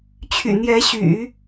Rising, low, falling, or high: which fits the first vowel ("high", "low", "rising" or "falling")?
low